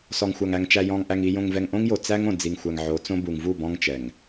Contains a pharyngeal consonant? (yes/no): yes